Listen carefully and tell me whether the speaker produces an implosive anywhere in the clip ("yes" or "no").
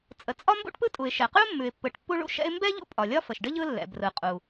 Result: no